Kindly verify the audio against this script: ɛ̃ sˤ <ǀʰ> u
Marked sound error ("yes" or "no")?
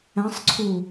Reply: no